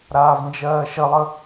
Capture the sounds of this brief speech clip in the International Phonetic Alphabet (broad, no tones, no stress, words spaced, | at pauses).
ɾaːvnd͡ʒɜːʃəlˠə